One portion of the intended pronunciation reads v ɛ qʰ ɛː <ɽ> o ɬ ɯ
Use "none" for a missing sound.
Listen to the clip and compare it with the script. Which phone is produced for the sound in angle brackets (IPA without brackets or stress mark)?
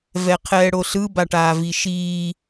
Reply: ɽ